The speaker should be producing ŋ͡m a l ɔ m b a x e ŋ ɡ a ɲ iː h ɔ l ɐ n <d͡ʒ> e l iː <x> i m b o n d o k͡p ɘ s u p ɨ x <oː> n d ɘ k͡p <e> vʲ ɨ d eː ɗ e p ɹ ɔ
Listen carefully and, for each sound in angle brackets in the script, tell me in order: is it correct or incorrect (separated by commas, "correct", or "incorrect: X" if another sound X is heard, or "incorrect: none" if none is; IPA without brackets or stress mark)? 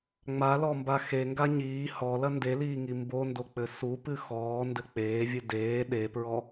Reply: incorrect: d, incorrect: ŋ, incorrect: ɔː, incorrect: eː